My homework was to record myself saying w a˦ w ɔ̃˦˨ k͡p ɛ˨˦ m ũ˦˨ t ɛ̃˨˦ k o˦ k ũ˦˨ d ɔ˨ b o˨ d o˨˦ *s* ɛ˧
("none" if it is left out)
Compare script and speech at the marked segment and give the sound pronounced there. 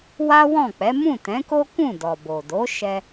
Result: ʃ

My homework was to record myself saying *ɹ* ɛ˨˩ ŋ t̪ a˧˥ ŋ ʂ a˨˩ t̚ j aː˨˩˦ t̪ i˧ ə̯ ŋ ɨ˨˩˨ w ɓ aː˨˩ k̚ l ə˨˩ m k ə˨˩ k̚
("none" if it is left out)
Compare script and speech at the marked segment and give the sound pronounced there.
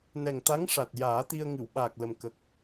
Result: n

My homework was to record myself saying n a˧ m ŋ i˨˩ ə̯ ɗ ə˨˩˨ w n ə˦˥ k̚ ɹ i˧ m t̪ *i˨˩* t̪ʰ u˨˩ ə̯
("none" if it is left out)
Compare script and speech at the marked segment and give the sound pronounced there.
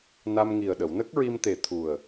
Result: e˨˩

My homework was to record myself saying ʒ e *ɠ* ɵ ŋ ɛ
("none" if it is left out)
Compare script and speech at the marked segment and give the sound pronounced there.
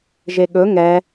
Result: ɠ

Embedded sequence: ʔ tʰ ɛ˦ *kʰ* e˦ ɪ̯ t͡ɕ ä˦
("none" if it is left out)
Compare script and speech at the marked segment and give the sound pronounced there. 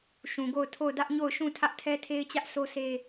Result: tʰ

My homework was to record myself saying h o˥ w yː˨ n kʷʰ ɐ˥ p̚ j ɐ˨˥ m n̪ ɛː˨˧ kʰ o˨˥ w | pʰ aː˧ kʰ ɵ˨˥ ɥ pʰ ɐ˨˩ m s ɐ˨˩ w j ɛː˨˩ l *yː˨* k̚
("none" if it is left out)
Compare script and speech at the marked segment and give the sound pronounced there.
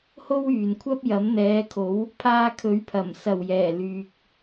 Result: yː˨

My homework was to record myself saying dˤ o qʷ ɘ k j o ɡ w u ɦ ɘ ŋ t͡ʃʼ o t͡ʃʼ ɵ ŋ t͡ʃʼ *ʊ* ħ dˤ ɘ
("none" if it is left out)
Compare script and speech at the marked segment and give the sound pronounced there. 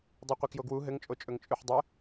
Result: ʉ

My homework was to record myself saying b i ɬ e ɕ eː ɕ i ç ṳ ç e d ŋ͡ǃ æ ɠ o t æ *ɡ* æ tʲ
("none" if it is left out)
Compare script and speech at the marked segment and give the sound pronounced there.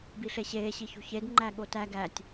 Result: ɡ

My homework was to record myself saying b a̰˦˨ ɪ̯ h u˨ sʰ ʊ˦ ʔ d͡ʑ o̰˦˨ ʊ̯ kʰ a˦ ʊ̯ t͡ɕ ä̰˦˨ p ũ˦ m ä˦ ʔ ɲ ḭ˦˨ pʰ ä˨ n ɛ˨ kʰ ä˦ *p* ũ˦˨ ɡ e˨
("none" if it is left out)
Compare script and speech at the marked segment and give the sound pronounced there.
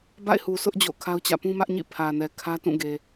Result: t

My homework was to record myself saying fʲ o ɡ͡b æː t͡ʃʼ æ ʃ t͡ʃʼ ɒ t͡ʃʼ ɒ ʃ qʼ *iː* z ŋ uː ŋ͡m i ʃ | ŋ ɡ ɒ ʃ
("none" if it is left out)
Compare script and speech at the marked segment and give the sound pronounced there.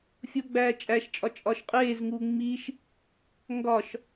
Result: eː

